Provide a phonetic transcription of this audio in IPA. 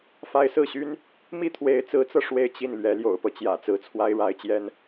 f a˥ ɪ̯ s ɹ̩˥˩ ɕ y˥ n | m i˥˩ t̪ʰ w e˧˥ ɪ̯ t͡s ɹ̩˧˥ t͡s ɤ˧ ʂ w e˥˧ ɪ̯ t͡ɕ i˥˩ n l ɥ ɛ˧˥ l j o̰˨˩ ʊ̯ p ɤ˦ t͡ɕ j ä̰˨˩ t͡s ɹ̩˧˥ t͡sʰ w a˥ ɪ̯ ɻ a˧˥ ɪ̯ t͡ɕ j ɛ˥ n

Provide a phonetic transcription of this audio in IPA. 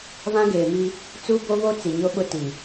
β ã˦ ɡ eː˨ m i˦ | t͡s u˦ b o˦ β o˦ t͡s i˨ ɲ o˦ ɓ ʊ˦ t i˨

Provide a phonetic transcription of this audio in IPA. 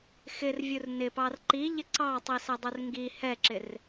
x ɪ r vʲ u r n ɪ p ɑ r ǃ i ʎ ɪ ǀ ɑ tˤ i s ɛ dˤ u r ŋ ɡ i h ɛ ǁ ɪ r

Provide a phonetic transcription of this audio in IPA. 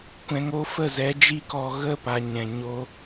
kʷ ɛ̃˨ ŋ o˧ f ə˦˨ z ɛ˨˦ d͡ʒ i˦ k ɔ˧ ɣ ə˦˨ p a˨ ɲ ɛ̃˨ ɲ o˧

